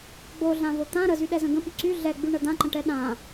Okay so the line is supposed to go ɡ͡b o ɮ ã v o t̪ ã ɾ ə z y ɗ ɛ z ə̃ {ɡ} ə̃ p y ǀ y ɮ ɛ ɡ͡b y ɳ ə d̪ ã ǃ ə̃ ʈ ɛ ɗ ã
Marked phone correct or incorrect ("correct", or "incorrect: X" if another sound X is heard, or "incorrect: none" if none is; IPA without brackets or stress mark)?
correct